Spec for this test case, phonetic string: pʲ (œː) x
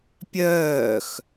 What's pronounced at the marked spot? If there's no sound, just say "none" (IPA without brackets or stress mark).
œː